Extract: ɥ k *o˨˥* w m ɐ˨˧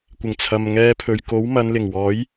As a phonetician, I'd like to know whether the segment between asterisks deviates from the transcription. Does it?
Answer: no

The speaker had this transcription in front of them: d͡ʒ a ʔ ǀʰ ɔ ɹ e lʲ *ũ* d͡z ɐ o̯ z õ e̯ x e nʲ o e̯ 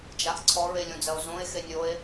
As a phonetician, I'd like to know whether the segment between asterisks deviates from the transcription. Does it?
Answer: yes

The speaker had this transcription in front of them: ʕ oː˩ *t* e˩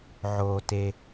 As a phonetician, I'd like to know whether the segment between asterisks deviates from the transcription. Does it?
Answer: no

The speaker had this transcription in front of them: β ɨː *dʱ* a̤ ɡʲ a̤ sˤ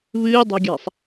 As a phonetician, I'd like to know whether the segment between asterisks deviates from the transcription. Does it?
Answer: yes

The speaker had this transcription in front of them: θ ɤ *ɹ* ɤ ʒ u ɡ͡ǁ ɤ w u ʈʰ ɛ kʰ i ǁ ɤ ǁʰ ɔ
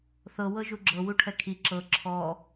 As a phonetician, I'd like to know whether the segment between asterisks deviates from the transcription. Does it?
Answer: yes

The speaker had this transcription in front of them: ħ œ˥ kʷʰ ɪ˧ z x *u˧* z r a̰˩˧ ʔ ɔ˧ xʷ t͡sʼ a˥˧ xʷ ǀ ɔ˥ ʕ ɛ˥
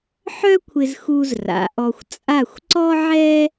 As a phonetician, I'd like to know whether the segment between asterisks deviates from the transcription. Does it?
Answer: no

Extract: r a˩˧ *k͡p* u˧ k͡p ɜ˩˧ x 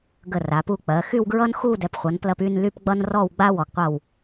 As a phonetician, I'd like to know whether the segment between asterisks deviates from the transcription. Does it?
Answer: yes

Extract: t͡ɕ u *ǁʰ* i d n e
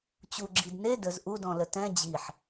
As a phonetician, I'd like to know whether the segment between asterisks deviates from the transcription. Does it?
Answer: yes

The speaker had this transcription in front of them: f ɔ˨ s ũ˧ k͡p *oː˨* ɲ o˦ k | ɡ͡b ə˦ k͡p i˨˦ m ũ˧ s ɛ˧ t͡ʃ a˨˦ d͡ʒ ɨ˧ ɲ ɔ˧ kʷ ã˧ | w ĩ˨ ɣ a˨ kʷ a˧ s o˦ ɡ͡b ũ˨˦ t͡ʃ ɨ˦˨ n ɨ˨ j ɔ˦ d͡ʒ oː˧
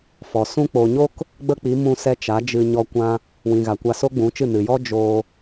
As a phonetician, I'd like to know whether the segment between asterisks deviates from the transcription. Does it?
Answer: no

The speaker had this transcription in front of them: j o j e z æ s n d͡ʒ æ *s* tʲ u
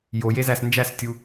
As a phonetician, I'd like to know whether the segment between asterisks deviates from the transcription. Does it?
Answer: no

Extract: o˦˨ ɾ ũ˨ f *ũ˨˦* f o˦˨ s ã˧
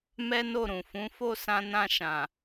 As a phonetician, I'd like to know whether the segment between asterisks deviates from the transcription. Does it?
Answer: no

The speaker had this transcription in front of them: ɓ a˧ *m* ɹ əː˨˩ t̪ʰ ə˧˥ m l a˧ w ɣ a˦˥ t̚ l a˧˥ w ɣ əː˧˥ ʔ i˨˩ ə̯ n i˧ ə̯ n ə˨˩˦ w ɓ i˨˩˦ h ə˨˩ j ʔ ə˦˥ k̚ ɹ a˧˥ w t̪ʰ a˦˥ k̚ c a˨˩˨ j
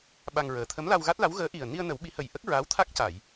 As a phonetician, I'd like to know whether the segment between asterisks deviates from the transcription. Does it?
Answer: yes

